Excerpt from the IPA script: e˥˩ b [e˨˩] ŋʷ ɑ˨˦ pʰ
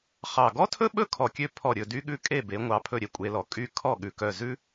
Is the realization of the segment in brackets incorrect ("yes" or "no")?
yes